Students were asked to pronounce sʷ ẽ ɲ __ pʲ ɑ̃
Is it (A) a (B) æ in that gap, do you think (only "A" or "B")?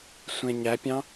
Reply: B